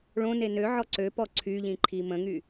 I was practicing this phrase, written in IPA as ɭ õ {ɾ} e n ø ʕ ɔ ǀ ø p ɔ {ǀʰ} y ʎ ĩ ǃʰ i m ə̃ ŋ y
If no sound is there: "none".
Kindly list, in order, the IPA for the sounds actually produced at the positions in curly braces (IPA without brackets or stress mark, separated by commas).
n, ǀʰ